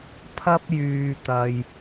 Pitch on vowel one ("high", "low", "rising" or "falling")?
high